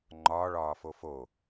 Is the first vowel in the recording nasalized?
no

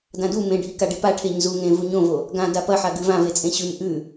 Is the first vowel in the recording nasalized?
yes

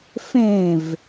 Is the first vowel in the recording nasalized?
yes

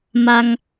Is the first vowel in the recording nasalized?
no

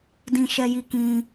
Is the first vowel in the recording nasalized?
yes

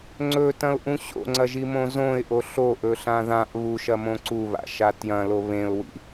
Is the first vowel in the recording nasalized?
no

